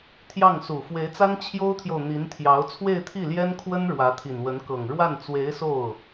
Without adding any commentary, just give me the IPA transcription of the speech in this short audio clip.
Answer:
t̪ʰjɑ˥˩ŋsu˨˩ fwe˧˥ɪ̯t͡sa˥n t͡ɕʰjo˥ʊ̯t̪ʰjo˨ʊ̯ n̪i˧˥nt̪ʰjɑ˧˥ʊ̯ t͡sʰwe˥˧ɪ̯t̪ʰi˥˩ljɛ˥nkʰwə˥n ɻwä˧˥t̪ʰi˨˩nwə˧˥nkɤ˨˩ŋ ɻwa˥˩nt͡swe˧˥ɪ̯so˥˩ʊ̯

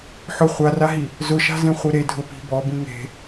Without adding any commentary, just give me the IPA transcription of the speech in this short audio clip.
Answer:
ħʊ χʷaraɦi | zʊʃa̤zẽ χʷeɾe dʱʊ pi̤ bɔ bĩŋe̤

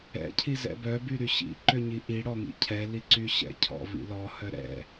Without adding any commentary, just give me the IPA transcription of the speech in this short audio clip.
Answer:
ɛ̰ cʰizɛ̰bœ byɾyɕḭ ǃøɲiʔi ɽɔŋḭcʰɛ liǀyɕɛ̰ cʰɔ̰vḭlɔ hœɾɛ̰

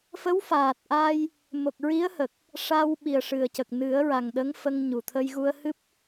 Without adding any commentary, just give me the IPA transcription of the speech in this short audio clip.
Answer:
fə˧˥wfaː˨˩t̚ʔaː˧j | mo˨˩k̚ɹi˧˥ə̯ hə˨˩k̚ | ʂa˧w ɓi˨˩ə̯ʂɨ˨˩ə̯cə˨˩k̚ nɨ˨˩˦ə̯ɹa˨˩ŋ ɗə˧˥ŋfə˧ŋ ɲu˨˩ t̪ʰə˧jɣu˧ə̯hɨ˦˥p̚

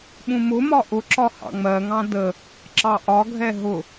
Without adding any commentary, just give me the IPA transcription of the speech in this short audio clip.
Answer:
ɓũmʊmɒ ʔʊǁɒ hɑ̰ŋ͡mɜŋɑ̃ də | ǁɑʔɒɡʱɛ ɦʊ

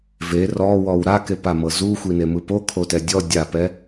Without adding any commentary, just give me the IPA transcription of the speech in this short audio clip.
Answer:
ve rɔwɔw ɾakepamɤ zuxʷinemɯ pokʰotɛ dʲɔ dʲapɛ

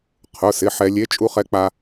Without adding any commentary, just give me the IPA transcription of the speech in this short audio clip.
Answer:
qʰʊ˩˧˩sɪ˩˧˩ ħɛ˧lʲe˧˥ t͡ʃʼu˧χɛ˧k͡pa˧

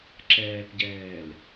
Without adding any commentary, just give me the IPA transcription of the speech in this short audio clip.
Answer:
ǁɛːpɟɛːl

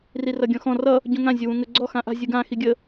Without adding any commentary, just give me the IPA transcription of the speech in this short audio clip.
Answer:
rirʌɡʲɔ̃xɔ̃ rʌ | ɟũŋã zʲʊwũŋə ɡ͡ǀɔ xãʔa̤ zʲɯɡã xiɡʲə

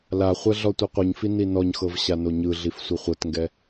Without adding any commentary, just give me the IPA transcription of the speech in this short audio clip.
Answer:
laχʷɛ ɮɔtʷɤqʷɯɲfi ninɔɲxɤv ɕanoɲɯɮif sʷɯχʷɤtŋɡɛ

